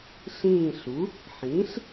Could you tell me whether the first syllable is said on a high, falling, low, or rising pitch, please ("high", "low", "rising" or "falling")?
falling